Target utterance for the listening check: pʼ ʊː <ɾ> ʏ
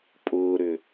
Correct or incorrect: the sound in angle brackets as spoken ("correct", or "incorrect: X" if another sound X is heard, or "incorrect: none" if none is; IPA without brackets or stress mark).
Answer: correct